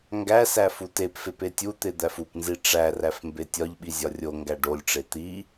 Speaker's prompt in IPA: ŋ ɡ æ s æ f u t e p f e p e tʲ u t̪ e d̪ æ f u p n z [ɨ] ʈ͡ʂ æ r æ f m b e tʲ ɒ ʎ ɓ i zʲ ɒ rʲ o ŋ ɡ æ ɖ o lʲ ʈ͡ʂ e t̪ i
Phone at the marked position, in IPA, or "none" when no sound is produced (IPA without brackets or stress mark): i